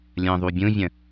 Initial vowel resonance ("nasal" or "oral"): nasal